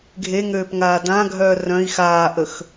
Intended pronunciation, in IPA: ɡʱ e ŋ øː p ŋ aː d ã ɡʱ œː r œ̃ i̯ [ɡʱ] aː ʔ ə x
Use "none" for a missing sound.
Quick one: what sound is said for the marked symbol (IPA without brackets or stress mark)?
x